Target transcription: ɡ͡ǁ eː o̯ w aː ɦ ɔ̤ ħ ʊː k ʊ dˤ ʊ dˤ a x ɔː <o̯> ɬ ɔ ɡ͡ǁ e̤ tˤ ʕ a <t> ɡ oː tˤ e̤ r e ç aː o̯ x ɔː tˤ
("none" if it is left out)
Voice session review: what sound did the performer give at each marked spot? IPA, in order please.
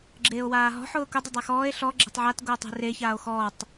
e̯, t

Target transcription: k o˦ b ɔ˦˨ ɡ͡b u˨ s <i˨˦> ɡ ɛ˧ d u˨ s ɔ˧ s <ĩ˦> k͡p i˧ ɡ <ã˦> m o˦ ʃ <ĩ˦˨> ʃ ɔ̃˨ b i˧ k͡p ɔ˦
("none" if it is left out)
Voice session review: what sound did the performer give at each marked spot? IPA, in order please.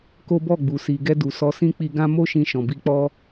i˨, ĩ˦, ã˦, ĩ˧

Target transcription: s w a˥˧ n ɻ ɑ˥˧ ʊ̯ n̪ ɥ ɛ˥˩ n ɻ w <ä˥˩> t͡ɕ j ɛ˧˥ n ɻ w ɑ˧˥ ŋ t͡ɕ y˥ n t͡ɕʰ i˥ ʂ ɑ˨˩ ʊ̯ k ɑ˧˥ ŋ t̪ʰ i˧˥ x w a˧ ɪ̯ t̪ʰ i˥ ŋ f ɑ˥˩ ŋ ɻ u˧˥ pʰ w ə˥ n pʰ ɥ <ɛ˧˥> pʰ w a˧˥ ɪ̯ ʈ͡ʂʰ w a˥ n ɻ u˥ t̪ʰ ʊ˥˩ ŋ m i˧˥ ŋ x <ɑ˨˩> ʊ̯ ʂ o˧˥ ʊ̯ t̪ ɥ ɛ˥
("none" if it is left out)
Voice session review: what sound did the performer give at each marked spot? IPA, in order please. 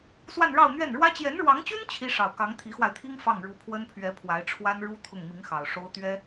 ä˥, ɛ˧˥, ɑ˨˩

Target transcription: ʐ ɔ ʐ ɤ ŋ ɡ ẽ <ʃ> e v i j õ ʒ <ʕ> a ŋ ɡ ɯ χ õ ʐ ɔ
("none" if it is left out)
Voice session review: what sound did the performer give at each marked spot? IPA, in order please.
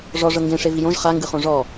ʂ, χ

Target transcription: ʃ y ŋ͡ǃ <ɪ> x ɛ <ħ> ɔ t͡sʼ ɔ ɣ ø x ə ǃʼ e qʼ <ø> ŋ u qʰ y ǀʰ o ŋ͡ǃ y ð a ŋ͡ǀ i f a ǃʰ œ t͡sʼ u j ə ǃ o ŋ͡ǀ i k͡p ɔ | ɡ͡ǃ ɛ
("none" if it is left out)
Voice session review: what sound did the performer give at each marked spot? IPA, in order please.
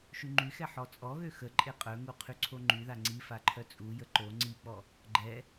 y, ħ, œ

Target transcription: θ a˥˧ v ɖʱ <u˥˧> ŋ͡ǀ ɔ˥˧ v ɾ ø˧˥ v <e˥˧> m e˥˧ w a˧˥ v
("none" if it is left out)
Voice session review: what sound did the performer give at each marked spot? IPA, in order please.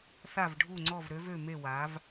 u˥˧, ø˥˧

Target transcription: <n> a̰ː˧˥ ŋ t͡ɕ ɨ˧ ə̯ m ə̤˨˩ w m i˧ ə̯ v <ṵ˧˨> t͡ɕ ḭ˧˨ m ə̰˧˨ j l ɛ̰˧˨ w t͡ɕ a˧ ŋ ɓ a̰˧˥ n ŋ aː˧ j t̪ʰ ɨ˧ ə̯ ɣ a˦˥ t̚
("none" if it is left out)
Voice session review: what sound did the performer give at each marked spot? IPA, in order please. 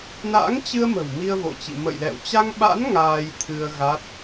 n, o̰˧˨

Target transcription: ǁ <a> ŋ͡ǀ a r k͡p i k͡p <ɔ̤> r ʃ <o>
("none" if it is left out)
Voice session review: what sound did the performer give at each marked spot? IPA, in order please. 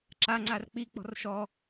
a, ɔ̤, ɔ

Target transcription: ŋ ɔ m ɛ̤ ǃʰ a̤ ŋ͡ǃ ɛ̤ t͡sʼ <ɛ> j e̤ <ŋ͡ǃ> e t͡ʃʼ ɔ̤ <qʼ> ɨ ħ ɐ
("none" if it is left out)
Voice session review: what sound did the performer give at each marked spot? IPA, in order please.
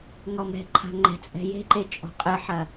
ɛ̤, ǃ, qʼ

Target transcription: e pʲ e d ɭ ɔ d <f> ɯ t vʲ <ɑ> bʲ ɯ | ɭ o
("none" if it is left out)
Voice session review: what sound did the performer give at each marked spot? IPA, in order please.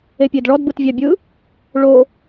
b, ɑ

